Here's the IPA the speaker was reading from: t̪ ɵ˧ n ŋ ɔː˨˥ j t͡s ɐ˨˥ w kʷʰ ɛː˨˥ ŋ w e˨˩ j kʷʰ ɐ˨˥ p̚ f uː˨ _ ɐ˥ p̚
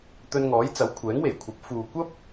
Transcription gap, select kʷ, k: kʷ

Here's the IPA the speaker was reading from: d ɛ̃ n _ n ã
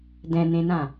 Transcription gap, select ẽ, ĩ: ẽ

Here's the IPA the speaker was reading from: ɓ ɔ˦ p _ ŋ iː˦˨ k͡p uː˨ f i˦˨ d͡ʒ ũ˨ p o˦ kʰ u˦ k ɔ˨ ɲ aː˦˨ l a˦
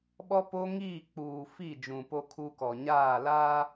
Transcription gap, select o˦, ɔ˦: o˦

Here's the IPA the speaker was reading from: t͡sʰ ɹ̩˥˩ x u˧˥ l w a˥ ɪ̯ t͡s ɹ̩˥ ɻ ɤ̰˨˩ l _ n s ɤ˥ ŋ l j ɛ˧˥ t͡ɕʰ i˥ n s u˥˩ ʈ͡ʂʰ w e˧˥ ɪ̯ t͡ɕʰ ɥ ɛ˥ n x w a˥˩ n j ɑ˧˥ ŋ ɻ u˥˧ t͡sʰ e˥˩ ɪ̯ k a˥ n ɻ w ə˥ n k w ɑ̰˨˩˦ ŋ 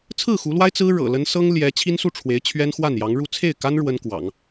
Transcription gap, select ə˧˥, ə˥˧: ə˧˥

